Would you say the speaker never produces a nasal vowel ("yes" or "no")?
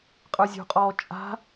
yes